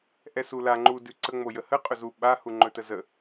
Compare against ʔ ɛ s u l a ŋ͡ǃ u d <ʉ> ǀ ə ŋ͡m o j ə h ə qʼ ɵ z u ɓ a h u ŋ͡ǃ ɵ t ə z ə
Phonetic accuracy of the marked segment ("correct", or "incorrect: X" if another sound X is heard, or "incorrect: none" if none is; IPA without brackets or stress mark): correct